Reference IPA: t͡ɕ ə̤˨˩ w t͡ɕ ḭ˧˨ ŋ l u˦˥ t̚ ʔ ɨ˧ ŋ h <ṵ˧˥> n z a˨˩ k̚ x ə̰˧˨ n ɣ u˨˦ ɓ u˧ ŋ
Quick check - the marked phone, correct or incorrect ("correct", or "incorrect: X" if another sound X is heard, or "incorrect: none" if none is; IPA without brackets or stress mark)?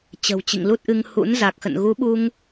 correct